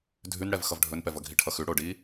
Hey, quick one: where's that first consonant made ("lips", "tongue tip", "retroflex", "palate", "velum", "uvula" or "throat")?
tongue tip